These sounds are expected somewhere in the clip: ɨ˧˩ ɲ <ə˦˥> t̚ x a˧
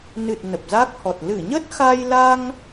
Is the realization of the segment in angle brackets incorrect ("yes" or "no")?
no